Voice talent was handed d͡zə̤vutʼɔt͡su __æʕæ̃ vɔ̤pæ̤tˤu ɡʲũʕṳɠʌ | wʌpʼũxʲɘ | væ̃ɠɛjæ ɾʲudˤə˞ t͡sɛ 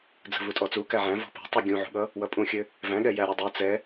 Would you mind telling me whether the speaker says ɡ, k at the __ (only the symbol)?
k